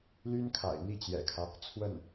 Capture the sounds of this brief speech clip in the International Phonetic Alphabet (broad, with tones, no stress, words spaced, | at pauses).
ly˥nkʰa̰˨˩ɪ̯ n̪i˥˩t͡ɕjɛ̰˨˩kʰä˦ | t͡sʰwə˥˩n